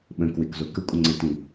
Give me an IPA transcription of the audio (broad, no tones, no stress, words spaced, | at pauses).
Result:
ɓə̃ kwɪk zokəkʷʼə̃ ŋ͡ǀɪtĩ